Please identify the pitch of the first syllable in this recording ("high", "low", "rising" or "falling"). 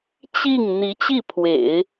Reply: falling